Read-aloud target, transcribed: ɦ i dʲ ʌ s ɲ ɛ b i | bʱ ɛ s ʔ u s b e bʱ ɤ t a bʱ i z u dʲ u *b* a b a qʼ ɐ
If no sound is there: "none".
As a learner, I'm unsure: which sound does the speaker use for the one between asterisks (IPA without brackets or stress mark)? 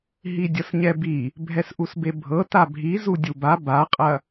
b